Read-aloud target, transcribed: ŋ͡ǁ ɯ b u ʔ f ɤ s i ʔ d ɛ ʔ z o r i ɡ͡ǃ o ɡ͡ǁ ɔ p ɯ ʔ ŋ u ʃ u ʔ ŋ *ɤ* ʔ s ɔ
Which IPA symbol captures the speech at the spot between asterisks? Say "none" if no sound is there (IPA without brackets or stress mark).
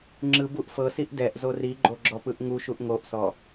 o